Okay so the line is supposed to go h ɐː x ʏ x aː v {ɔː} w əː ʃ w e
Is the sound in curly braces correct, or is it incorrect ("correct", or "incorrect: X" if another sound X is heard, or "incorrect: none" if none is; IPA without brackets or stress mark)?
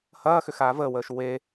incorrect: əː